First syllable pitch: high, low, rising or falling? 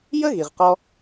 high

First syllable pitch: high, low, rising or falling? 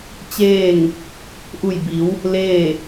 falling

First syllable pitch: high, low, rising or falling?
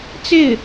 falling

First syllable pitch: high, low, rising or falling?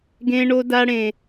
high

